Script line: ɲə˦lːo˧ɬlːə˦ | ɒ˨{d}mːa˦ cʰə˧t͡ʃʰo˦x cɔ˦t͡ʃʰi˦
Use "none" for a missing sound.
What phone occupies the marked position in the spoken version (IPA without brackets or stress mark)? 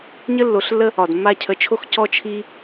d